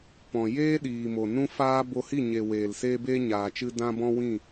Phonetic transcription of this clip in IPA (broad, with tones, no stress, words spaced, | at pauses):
pɔ̃˨ jeː˦ɗiː˨mo˨ nũ˦faː˦bo˧ hi˦˨ɲe˨ weː˨lseː˧beː˧ ɲaː˨t͡ʃɨ˧ dã˧ bɔ̃˦wĩ˦˨